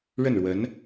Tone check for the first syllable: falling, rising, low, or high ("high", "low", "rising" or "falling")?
falling